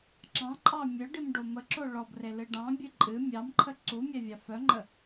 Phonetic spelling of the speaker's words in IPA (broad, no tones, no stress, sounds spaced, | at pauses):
ǁ ɑ̃ ǃʼ ɑ mʲ œ ɖ i m ɖ o m ə ǁ o ɭ ɔ b r e l ɨ ɖ ɑ̃ bʲ ɨ ǃʼ ɨ mʲ ɑ m ǃʰ ə ǀ u mʲ æ vʲ ɑ f œ ŋ͡ǃ ə